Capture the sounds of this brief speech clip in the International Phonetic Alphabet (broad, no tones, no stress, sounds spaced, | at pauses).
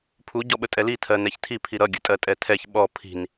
pʰ u ɟ ɔ ɓ ə tʼ ɛ l i tʰ ɜ n ɛ ç tʰ i pʰ i ɾ ʌ ɡʲ ə̤ tʼ ɜ tʼ ɛ tʰ ɛ ç ɓ ɔ pʰ i̤ n